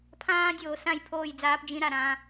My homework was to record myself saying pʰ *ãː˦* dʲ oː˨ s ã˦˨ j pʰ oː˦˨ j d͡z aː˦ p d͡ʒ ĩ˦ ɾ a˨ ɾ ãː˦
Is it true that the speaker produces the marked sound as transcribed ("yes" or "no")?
yes